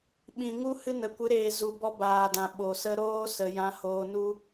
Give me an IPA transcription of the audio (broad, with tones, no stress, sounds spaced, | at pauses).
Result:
ɓ ĩ˨ ŋ u˦ h ɨ˦ n ə˨ kʷ ɨ˨˦ ɾ eː˨ z u˨ b ɔ˧ b aː˨ d ã˨ ɓ o˨ s ə˧ ɾ oː˦ s ə˧ j ã˦ h oː˦ n u˦